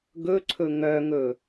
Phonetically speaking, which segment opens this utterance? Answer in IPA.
ɡ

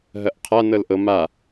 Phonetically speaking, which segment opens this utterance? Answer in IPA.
ɦ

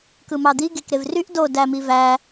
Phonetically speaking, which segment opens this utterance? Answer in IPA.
k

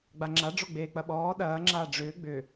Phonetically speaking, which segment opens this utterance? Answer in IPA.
ɡ͡b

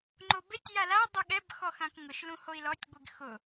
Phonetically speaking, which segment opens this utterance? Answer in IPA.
ŋ͡ǃ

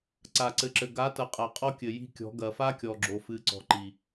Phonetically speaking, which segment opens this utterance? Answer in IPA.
ǀ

